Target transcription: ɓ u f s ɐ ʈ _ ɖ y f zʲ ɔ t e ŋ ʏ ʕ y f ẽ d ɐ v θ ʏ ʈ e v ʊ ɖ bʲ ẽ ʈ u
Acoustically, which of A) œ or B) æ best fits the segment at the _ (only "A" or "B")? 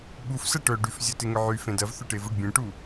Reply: A